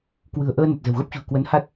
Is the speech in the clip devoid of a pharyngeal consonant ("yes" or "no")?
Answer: yes